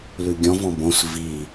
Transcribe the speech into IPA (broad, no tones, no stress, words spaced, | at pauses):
lʉɡʲɔ̃v ɔ̃bõs vi